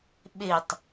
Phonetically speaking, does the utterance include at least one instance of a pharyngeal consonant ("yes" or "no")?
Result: no